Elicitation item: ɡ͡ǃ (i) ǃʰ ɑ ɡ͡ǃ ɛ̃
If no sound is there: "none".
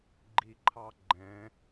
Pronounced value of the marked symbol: i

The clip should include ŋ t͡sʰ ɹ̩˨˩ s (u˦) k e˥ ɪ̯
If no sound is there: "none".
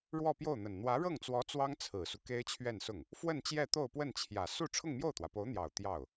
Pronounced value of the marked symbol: u˦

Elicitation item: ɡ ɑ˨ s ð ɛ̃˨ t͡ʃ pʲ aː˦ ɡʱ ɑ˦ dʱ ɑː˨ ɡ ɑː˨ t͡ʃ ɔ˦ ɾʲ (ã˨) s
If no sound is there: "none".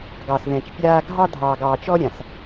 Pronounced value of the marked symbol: ã˨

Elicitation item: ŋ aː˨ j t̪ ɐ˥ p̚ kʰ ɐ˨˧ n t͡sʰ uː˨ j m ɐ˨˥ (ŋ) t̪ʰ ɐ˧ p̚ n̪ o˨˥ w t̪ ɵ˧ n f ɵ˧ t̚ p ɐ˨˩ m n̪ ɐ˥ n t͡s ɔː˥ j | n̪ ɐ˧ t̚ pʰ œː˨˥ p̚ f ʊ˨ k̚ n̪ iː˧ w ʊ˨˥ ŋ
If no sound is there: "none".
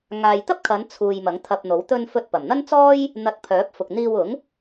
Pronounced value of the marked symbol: ŋ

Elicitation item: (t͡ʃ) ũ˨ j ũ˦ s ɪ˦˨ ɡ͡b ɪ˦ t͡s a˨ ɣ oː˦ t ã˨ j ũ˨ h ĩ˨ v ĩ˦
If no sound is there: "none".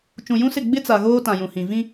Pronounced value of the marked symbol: t͡ʃ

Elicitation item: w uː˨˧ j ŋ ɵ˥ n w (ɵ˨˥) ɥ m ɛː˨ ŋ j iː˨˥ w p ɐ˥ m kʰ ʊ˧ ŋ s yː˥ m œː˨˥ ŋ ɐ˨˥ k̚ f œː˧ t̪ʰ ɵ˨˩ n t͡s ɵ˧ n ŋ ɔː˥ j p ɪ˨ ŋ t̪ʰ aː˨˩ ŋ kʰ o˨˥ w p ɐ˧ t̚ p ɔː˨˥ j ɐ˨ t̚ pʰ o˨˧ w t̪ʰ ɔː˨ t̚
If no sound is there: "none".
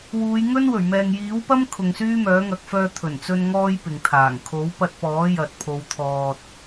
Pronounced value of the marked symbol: ɵ˨˩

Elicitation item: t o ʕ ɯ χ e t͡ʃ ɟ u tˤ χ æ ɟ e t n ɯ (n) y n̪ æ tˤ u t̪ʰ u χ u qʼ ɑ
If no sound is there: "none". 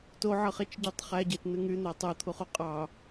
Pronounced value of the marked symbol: ŋ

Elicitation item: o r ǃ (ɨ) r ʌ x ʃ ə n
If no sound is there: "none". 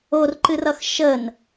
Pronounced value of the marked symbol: ɨ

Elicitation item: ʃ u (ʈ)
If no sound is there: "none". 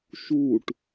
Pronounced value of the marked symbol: ʈ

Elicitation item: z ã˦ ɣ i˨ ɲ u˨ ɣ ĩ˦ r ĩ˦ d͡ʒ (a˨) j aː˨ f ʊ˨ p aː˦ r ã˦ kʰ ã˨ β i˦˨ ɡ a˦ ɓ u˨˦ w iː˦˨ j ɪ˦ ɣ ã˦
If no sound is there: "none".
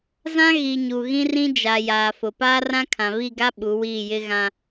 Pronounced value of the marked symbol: a˨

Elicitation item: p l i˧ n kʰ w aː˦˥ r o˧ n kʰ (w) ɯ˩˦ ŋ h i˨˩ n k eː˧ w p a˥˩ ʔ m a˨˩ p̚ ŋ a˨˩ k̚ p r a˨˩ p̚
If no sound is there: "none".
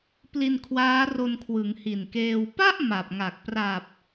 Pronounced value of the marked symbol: w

